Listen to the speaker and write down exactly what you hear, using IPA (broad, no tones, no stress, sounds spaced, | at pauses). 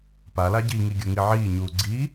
p a l a ɟ i ŋ i ɡʲ o ŋ i ʕ iː ɲ uː ɡ͡ǀ i